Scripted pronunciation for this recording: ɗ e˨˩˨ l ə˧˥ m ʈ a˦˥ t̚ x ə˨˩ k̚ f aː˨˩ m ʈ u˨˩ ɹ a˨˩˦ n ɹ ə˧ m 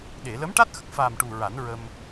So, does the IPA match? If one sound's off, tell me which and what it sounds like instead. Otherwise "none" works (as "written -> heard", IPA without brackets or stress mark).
none